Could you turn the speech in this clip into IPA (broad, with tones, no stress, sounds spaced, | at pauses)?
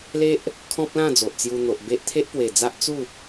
l e˦ ʔ | kʰ ɔ̃˦ p̚ l ã˥˧ d͡z o˨ ʔ t͡s j u˧ n̪ o˨ ʔ b e˦ ʔ t̪ʰ e˦ ʔ p w e˨˩ d͡z a˦ ʔ t͡s u˥˧